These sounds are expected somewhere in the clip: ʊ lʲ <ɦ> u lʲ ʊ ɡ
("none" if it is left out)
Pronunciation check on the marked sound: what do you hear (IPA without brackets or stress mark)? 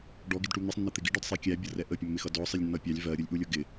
ʔ